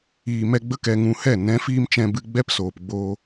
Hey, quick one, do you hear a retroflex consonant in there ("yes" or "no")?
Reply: no